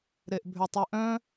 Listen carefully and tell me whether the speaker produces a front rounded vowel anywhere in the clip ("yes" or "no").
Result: yes